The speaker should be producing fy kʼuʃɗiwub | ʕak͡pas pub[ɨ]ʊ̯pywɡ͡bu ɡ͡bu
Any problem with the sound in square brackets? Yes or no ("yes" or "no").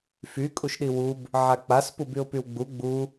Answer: yes